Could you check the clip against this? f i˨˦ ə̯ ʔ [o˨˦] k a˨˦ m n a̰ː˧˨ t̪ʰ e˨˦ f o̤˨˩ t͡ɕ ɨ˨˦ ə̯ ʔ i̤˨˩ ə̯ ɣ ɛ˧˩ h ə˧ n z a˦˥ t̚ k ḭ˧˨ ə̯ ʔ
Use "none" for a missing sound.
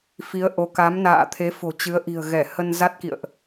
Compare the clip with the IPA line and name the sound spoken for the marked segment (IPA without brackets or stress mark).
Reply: o˨˦